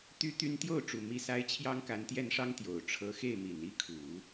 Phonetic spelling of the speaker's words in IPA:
t̪y˥t̪y˥n t̪jo˥˩ʊ̯ʈ͡ʂu˨˩ mi˥˩sa˥ɪ̯ t͡ɕʰjɑ˥ŋka˧˥nt̪jɛ˥˩nʂɑ˥ŋ t̪jo˨˩ʊ̯ʈ͡ʂʰɤ˧˥xe˥˩ɪ̯mi˨˩n i˥kʰu˨˩˦

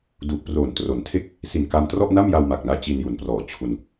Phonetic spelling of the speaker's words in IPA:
du˨˩ʔ proː˨˩ntro˩˦ntʰe˥˩k̚ | si˨˩nka˧mtrɔ˥˩ʔ na˥˩mja˧wma˨˩k̚naː˧ t͡ɕi˧nju˩˦nprɔː˨˩ t͡ɕʰu˧n

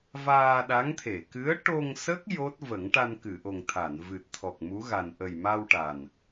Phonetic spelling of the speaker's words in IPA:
vaː˧ɗa˧˥ŋt̪ʰe˨˩˨ kɨ˧˥ə̯ʈo˧ŋsə˦˥k̚ jo˦˥t̚ və˨˩˦ŋʈa˧n kɨ˨˩˨ʔo˨˩ŋ t̪ʰa˨˩˨nvɨ˨˩t̚t̪ʰɔ˨˩k̚ mu˧˥ɣa˨˩n ʔə˨˩jma˧w ʈa˨˩n

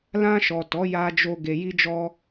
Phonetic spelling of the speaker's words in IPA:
lã˧ʃɔ˨ tɔ˨˦ja˧d͡ʒo˧ ɡe˧ji˦d͡ʒɔ˦

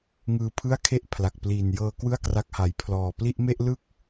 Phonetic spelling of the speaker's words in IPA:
ŋɯː˧pʰɯ˥˩a̯kʰe˥˩ʔ pʰla˨˩k̚pliː˨˩njɤː˧ kwɯ˥˩a̯kra˦˥k̚ha˨˩j pʰlɔː˨˩pli˥˩ʔ me˥˩ʔlɯ˥˩k̚

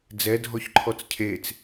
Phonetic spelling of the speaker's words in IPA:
d͡zɛdʱɔçǃʰɔt͡s cʰet͡s

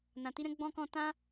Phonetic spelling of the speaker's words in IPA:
nã˨ti˧ɾɛ̃˧ ɡ͡bɔ̃˦kɔ̃˦ tã˦

